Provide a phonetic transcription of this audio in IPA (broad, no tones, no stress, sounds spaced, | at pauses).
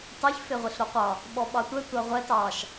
t ɑ ç f e ʁʷ e ɬ ɾ o qʷ ɑ | ɓ ɔ ɓ ɑ tʷ ɛ tʷ ɑ ʁʷ ɛ t ɑ ʃ